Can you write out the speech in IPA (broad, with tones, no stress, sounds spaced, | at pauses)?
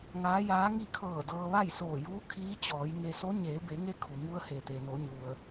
ŋ aː˧˥ j aː˧˥ ŋ i˥˨ kʰ ɤː˧˩ d ɤː˧ ʋ a˥˨ j s oː˧˩ j uː˧˥ kʰ iː˧˥ t͡ɕ ɔː˩˧ j ŋ e˧ s o˧˥ ɲ eː˩˧ b e˩˧ ŋ e˧˥ kʰ u˩ ŋ u˧ ə̯ h e˩ t̪ e˩ n o˩˧ ɲ u˩ ə̯